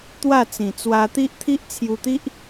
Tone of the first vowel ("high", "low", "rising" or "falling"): falling